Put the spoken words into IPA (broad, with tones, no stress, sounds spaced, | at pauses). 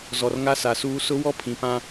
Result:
z ɔ˨ r ŋ a˦ s a˨ s uː˦ s ʊ˦ w ɔ˦ pʰ ĩ˨ p ã˦